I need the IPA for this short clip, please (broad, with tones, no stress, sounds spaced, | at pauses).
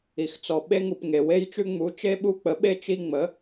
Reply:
i˩ x t͡s ɔ˩ ɓ e˦ ŋ u˩ p ŋ e˩ w e˦ j t͡ʃ ʉ˦ ŋ͡m u˩˥ t͡ʃ e˦ ɓ u˦ k͡p ə˩˥ ɓ e˦ t͡ʃ i˦ ŋ͡m ə˩˥